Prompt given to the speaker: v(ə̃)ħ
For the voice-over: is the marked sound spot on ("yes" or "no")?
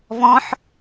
no